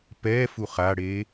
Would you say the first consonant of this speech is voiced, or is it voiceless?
voiceless